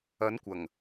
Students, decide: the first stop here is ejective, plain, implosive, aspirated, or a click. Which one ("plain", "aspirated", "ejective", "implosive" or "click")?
plain